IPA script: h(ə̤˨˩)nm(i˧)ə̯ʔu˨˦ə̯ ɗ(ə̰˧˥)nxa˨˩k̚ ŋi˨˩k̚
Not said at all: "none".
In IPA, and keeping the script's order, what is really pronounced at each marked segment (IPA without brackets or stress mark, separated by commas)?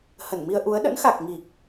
ə˧˩, i˧, ə̰˧˥